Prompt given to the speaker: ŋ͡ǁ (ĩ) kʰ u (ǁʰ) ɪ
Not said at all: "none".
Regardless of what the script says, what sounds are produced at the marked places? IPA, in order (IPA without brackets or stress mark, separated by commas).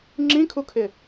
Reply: ĩ, kʰ